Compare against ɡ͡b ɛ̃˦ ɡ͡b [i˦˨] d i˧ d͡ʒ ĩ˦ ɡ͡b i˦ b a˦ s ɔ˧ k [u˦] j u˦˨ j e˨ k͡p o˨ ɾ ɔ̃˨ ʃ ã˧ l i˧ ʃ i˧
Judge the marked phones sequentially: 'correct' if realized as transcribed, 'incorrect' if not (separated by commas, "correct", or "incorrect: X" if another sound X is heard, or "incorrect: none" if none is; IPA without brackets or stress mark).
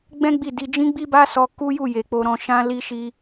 correct, correct